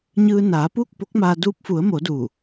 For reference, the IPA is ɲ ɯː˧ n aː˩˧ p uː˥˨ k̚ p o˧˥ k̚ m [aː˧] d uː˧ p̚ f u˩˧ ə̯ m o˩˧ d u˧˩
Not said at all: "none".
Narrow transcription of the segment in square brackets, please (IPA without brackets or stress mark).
aː˧